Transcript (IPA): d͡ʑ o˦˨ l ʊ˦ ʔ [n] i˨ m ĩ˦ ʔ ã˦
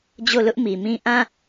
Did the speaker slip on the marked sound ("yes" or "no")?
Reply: yes